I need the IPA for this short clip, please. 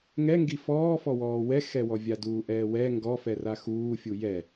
ŋɛŋɡi fɔːfɔwɔː wɛxɛwɔvʲa duːʔɛːwɛ ŋɡɔfɛ raxuːfʲu jɛ

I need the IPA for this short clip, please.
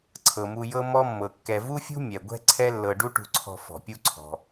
ǀʰɤ˩mu˨ jɤ˦ mɔ˦mːɤ˩kːɛ˨ vu˥fʲṳ˥ mʲɛ˩ɡʷɛ̤˦ ǀʰɛ˦lːɤ˨ ɖu˦ʈṳ˨ǀʰɔ̤˨ fɔ̤˩pʲu˦ǀʰɔ̤˩

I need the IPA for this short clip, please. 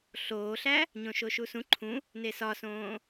ɬoːɬæ | ɲõʃoʃusũ ǃʰũ | nesɒsõː

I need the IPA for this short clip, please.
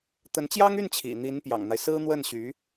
t̪ə˧˥nt͡ɕjɑ˥ŋy˥˩n t͡ɕʰḭ˨˩n̪i˧˥npjɑ̰˨˩ŋn̪a˦ɪ̯ sɹ̩˥n̪wə˥˩nɕy˧˥

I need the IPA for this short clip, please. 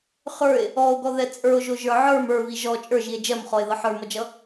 χə˞e̯ | ɔo̯ɡɔðɛ t͡sʼə˞o̯ʒoʒə˞ ʕə˞m ə˞vi ʒɔ t͡ʃʼə˞ʒie̯ d͡ʒɜmχɔe̯ðʌ ħə˞mʌd͡ʒʌ

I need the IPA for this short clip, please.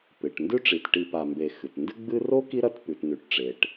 pɨ˩ʈ ndʉ˥ʈ͡ʂi˩tʈi˨ pa˨mbe˨xɨ˩t ndɨ˦ɡ͡bɨ˦ro˥ ki˥ɾɐ˦t pʉ˩tnʉ˩ʈʈ͡ʂe˩ʈ

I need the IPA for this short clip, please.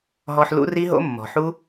ɦɔ˧ħ lṵ˦ri˦ɦo̰˦mːɔ̤˨ ħu˦

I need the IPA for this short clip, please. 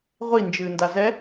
ʁʷi nd͡ʒɨːndazɛ

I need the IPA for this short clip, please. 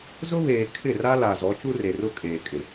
zʊ˦βeː˨ kʰɪ˦˨ra˦la˨ zɔ˨˦t͡ʃu˦re˨ rʊ˦ kʼeː˨kʼɪ˨

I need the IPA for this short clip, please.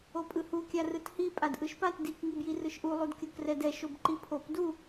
opʼɯhu kʲarɯthi pʼadʔɯʃpat dik ŋibjirɯʃʔu lˠudkʲokrɛdɛ ʃobǃipʰop du

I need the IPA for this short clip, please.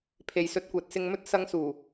pʰe˨jsɵ˧t̚ kʷɛː˨t̚sɪ˧ŋmɵ˥t̚ sɐ˧ŋsuː˨˩

